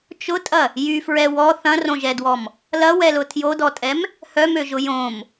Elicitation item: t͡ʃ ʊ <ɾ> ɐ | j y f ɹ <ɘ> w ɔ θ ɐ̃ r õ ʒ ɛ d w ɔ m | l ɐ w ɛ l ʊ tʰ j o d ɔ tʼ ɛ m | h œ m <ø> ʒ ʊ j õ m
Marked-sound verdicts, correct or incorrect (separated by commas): incorrect, incorrect, correct